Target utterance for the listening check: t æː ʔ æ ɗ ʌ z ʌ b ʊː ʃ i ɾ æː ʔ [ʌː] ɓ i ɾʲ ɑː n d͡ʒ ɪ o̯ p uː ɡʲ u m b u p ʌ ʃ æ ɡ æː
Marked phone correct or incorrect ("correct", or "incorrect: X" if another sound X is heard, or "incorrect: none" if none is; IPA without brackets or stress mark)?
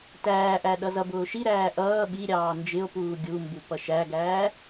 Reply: correct